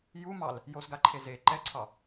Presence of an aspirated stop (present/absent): present